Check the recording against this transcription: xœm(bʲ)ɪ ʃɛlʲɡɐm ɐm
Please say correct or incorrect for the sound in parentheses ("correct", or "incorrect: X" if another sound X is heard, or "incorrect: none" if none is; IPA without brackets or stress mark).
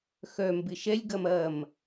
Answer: incorrect: b